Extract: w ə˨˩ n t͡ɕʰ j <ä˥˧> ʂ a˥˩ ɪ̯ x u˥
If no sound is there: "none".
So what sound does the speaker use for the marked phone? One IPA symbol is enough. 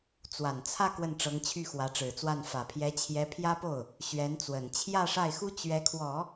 ä˥˧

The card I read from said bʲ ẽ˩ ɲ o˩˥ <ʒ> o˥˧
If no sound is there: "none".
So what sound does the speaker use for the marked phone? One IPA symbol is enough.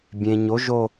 ʒ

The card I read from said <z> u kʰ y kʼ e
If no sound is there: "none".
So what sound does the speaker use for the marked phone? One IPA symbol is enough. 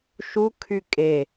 ʃ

